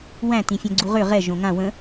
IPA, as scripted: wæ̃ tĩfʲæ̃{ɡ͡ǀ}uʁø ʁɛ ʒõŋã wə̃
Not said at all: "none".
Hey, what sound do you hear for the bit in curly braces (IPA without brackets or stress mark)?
ɡ͡ǀ